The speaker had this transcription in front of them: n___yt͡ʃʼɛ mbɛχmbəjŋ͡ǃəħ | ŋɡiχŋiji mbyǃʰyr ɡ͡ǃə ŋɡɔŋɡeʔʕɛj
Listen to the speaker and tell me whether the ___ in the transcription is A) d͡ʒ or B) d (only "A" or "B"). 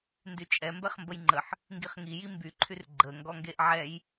B